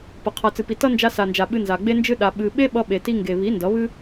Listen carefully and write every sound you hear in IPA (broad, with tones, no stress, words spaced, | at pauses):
pʌ˨ qʰa˨t͡sɨ˨pi˨ tʌ˦ nd͡ʒa˧sa˨nd͡ʒa˨ ɓɨ˧nza˨ɡ͡be˦nd͡ʒɨ˦ ɗa˧ ɓɨ˧ ɓe˦ɓʌ˧ɓe˨ti˧ ŋɡe˨βi˨˦ ndʌ˨˦βɨ˦